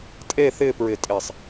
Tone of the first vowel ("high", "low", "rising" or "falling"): falling